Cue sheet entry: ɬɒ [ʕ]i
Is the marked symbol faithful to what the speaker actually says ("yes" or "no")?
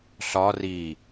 no